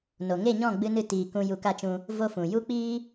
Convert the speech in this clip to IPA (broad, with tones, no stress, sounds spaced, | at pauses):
n o˨ ŋ e˦˨ ɲ ɔ̃˦˨ ɡ͡b ɨ˦ n ɨ˦ t iː˧ k ũ˦ j u˧ k a˦ t͡ʃ ũ˧ | v o˦ f ũ˨ j u˦ k͡p iː˦